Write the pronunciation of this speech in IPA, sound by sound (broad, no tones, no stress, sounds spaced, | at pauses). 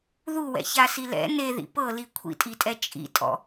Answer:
ð u w ɛ̰ ç a s i l ɛ̰ n e ð ḭ p ɤ l i kʷʰ ḭ tʼ i tʼ ɛ t͡ʃʼ ḭ tʼ ɔ̰